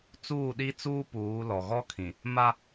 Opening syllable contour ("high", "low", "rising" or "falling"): falling